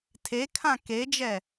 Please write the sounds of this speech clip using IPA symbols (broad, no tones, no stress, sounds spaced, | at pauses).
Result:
tʰ e kʰ ã k e d͡ʒ ɛ